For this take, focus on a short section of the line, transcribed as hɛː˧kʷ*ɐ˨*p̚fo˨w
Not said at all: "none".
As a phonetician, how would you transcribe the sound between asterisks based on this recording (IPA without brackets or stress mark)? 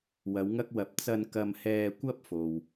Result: ɐ˥